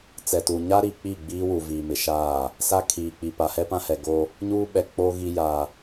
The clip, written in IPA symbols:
t͡sɛ˨tuː˨ ɲa˦ ɾi˨k͡pi˦˨ ɡ͡biː˦wu˨ viː˨mɪ˨ʃaː˦˨ | sa˦kʰiː˨k͡pi˨ pa˨hɛ˦pã˦hɛ˨ ɡo˦ | ɲuː˦ɓɛ˨k͡poː˦ɣi˦ ja˦

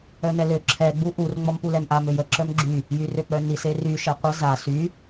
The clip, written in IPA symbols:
œnɛlø ǁʰɛ ɡ͡buʔur ŋ͡mɔmpulɛmʔa møjə ǁœmɡ͡ǁy | jyrøk͡pœnis ery ʃɛqʷə za sy

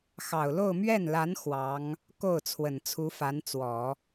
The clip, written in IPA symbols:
xɑ˨˩ʊ̯ lo˥˧ʊ̯ mɥɛ˥˩nla˧˥n xwɑ˧˥ŋ | ko˥˩ʊ̯ t͡sʰwə˨˩nt͡sʰu˧˥fa˧˥nt͡swɔ˨˩˦

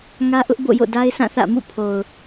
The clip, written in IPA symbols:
ŋä˦ʔʊ˦ʔ bo̰˦˨jo̰˦˨ da˦ɪ̯sʰã˦˨θä̰˦˨mṵ˦˨ pʰo˨ʊ̯

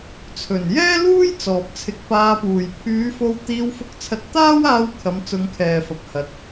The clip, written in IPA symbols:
t͡sʰɵ˨˩njɛː˥luː˥j t͡sɔː˨p̚t͡sʰɪ˧k̚paː˧puː˨j pʰyː˨˧fo˧wt̪iː˧w fʊ˧k̚t͡sʰɐ˧t̚ t̪aː˥waː˧wkʰɐ˨˧m t͡sʊ˧ŋkʰɛː˨fɐ˨p̚hɐ˨˥t̚

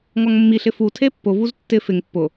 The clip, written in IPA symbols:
ŋɔŋmːiɬɪ fu tʰepːʊvuz tːɪ fɪŋ pːʊ

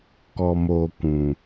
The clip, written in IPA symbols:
kɔ˨moː˨ kʷũ˨

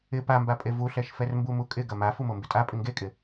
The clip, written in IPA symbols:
ɪ pambapʼe vuɬɛʃfɛrmbu mukʼɪ ɡɐma fumombɪtʼa pʼɪŋɡekʼɪ

